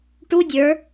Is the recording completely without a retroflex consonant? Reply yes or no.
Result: no